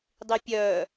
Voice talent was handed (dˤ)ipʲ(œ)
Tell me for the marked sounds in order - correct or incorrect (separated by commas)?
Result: correct, correct